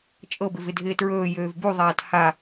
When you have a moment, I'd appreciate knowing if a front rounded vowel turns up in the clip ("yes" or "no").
yes